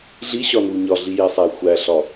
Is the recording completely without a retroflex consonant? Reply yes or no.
yes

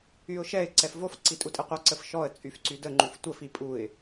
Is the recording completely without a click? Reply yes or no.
no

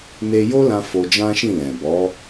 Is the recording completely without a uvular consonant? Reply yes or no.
yes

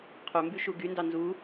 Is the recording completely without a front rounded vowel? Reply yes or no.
no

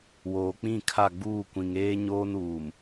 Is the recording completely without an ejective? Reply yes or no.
yes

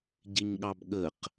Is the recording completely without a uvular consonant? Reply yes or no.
no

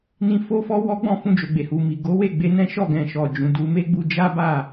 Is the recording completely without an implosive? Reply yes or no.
yes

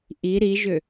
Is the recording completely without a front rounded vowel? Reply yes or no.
no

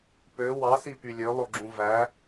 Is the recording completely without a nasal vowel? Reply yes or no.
no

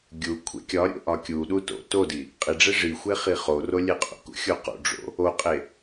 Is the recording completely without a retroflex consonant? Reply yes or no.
no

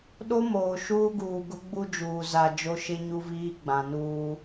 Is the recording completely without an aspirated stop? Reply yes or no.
yes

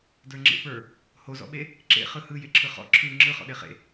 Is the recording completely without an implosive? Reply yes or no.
no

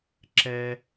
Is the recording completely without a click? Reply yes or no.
no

